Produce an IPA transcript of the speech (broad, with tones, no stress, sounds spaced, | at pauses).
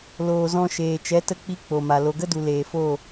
l oː˨ z ɔ̃˧ ʃ eː˨ t͡ʃ ɛ˨˦ t ə˧ k͡p i˧ k͡p o˨ m a˨ l o˨ ɡ ə˦ d u˨ l eː˨ f o˦˨